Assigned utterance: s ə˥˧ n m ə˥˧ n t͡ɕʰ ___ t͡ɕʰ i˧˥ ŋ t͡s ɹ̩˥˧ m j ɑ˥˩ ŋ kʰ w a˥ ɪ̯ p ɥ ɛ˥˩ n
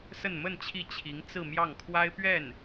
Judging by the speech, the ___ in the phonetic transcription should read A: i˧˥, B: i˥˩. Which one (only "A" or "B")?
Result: B